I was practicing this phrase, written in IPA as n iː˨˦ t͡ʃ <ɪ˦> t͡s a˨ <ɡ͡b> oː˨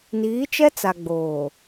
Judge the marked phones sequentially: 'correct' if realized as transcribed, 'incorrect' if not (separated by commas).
incorrect, correct